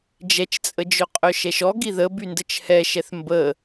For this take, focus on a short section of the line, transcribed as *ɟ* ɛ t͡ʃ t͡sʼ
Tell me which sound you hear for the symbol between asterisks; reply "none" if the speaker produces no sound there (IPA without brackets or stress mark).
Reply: d͡ʒ